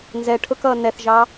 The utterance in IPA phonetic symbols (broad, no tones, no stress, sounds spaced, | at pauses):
n z ɛ ʈʰ ʊ k ʌː n ɛ θ ʒ ɑ